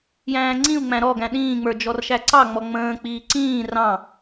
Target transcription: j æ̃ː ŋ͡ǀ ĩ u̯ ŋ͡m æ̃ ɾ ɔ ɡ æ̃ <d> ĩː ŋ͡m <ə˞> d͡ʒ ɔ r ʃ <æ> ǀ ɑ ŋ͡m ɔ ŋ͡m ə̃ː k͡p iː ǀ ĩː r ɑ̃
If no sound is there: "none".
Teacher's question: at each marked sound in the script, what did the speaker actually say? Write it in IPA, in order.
ɗ, ə˞, æ

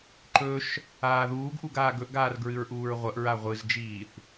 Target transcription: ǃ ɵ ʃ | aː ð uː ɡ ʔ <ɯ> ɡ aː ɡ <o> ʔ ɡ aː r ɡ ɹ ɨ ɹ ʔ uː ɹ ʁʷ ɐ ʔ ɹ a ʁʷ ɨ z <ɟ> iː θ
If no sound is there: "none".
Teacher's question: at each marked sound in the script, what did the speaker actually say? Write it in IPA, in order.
u, ɵ, d͡ʒ

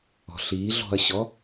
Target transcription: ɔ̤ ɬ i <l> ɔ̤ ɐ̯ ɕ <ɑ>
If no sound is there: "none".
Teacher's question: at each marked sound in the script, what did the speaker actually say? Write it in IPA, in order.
ɮ, ɔ

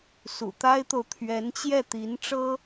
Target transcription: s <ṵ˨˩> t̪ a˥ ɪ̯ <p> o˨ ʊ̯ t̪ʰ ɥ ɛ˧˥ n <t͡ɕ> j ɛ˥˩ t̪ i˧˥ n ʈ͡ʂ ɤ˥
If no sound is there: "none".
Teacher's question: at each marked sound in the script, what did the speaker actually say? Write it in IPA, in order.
ṵ˨˩, t̪, t͡ɕ

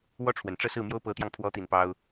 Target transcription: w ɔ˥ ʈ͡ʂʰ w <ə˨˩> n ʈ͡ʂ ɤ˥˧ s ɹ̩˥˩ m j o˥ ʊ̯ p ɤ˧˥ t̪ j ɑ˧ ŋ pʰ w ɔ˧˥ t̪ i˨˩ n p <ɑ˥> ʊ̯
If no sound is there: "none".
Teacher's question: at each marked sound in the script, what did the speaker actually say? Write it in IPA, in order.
ə˨˩, ɑ˥

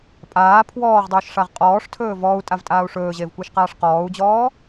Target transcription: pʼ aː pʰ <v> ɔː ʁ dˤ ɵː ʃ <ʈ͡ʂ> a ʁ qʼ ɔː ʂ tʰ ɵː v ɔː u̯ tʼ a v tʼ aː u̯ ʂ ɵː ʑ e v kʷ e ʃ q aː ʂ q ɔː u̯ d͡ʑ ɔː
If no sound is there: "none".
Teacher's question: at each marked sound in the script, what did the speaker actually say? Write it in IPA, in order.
w, ʂ

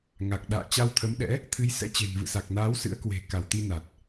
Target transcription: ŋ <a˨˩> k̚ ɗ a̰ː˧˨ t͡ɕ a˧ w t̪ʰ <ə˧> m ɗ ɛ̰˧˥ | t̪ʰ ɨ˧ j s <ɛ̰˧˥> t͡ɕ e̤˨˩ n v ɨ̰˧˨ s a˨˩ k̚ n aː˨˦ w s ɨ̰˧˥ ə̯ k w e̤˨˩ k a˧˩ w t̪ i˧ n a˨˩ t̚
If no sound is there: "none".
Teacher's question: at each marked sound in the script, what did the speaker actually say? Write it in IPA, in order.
a˨˩, ə˨˦, ɛ̰˧˥

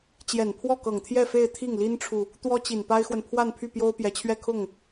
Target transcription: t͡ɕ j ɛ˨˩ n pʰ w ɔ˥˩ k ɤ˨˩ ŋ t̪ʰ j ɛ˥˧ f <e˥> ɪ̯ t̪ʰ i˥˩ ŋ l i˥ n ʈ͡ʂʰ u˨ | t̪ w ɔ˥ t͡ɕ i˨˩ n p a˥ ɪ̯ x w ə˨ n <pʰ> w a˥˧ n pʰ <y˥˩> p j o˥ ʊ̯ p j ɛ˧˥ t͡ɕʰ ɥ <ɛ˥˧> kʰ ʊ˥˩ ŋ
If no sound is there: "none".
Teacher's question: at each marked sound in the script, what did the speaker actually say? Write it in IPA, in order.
e˥˧, pʰ, y˥˩, ɛ˥˧

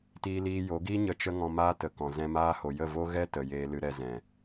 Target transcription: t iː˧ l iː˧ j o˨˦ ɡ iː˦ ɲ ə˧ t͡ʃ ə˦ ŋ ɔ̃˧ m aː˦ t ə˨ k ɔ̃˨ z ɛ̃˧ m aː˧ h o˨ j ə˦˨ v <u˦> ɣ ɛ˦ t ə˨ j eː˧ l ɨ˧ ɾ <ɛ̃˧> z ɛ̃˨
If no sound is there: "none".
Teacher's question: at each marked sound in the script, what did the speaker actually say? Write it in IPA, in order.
o˦, ɛ˧

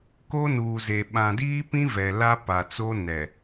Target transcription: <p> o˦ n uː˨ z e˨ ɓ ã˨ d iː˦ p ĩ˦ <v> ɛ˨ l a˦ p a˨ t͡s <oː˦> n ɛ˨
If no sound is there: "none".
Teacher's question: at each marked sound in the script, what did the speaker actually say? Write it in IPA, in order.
k, v, o˦

